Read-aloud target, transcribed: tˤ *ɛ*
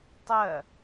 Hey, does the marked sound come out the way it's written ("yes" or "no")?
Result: no